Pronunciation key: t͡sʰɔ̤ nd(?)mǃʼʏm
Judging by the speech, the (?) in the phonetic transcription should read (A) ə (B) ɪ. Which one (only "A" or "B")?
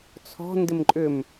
B